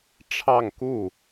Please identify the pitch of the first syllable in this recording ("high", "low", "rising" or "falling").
falling